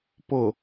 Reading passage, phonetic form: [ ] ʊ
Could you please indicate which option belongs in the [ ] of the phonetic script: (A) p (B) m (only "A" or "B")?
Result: A